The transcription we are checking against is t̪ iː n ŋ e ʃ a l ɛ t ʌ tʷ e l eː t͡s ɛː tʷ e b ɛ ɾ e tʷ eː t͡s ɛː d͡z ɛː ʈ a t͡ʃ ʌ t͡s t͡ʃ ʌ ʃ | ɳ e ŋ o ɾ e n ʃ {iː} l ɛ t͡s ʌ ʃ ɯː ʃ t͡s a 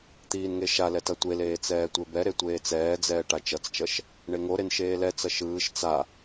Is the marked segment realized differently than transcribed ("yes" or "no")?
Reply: yes